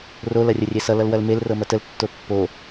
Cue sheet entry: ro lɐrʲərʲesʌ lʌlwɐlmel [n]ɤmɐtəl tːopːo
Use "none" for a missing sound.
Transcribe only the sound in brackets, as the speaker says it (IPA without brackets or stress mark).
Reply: r